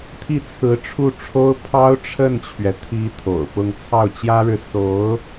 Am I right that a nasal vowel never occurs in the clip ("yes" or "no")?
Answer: yes